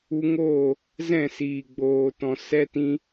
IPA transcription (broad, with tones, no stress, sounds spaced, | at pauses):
u˧ ŋ oː˦˨ | z ɛ̃˦˨ s iː˨ ɡ͡b oː˨ t ɔ̃˨ s ɛ˧ t ĩ˧